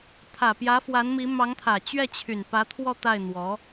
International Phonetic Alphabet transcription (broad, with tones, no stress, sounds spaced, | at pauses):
t̪ʰ ä˨˩ p j ä˧˥ f w a˧˥ n m i˧˥ m ɑ˧˥ ŋ t̪ʰ ä˨˩ t͡ɕ ɥ ɛ˥˩ t͡ɕʰ y˨˩ n p ä˧˥ t̪ʰ w ɔ˥˧ t̪ a˥˩ ɪ̯ n̪ w ɔ˧˥